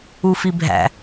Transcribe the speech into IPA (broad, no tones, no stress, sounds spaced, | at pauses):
u f i bʱ æ̰